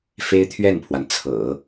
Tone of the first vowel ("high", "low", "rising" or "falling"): high